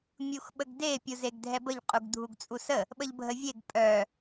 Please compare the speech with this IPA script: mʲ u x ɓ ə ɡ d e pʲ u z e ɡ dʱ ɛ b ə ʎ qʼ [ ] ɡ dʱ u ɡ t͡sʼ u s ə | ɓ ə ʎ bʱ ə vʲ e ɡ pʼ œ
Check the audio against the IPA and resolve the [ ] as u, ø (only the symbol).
u